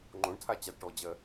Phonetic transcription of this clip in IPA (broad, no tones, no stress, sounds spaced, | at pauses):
ŋ͡ǃ õ ɳ tʰ a t͡ɕ a d ʈ ɔ d͡ʑ ɜ